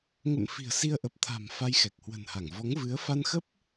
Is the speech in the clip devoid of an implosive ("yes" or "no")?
yes